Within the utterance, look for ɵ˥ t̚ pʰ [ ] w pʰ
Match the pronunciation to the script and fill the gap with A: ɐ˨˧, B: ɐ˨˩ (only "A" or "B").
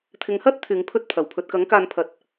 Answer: B